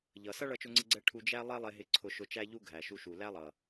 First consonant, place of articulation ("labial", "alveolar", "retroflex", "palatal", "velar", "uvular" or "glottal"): palatal